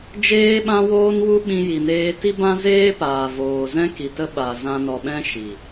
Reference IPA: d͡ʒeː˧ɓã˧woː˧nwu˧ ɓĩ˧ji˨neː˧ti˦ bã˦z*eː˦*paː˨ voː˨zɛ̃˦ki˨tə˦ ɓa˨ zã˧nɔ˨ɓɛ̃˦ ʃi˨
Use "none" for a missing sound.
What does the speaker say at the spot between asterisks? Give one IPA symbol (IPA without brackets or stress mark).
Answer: eː˦